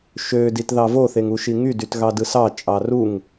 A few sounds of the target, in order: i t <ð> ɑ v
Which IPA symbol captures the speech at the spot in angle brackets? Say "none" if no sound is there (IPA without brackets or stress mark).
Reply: ð